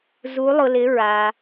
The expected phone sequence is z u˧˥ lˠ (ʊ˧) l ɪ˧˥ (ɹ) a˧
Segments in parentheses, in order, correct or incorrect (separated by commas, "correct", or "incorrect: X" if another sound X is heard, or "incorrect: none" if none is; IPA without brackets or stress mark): correct, correct